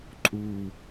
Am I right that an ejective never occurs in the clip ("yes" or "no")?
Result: no